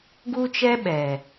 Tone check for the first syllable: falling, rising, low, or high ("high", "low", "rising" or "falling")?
high